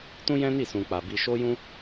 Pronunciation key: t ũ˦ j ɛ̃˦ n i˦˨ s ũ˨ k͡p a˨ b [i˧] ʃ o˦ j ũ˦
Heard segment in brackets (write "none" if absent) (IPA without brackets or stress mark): i˧